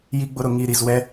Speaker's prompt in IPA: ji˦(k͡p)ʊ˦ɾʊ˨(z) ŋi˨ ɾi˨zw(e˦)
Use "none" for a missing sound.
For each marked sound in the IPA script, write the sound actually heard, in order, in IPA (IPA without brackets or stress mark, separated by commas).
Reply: ɡ͡b, none, ɛ˦